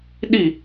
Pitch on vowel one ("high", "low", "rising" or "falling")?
falling